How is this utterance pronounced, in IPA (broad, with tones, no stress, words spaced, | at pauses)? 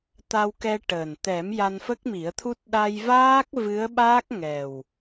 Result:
t̪a˧wkɛ˧ ʈəː˨˩n t̪ɛ˨˩˦m ja˧nfə˦˥k̚mi˨˩˦ə̯t̪ʰu˦˥t̚ ɗa˧jvaː˦˥k̚ vɨ˧˥ə̯ɓaː˦˥k̚ŋɛ˨˩w